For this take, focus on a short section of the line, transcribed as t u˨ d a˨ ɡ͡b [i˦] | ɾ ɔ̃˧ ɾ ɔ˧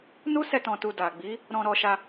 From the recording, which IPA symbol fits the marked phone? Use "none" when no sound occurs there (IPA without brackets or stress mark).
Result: i˨˦